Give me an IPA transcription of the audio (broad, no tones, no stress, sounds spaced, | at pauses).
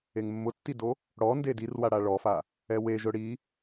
e ŋ mː ʊ tː i d o | ɽ ɔ n d e d i r w a ɽ a ɭ ɔ f a | ɛ w e ʒ ʊ ɽ i